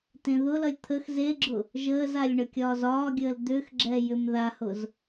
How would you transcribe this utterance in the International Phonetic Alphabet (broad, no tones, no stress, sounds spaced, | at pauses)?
t ẽ ð ʊ l ʌ lʲ t̪ʰ ə x z e ɡ͡ǁ ʊ | ʒ əː z a lʲ ɳ ə kʲ ɒː z ɒː ɡʲ əː l d̪ ʏ x ɡ͡ǁ ɛ j ʏ m ð a h ʊ z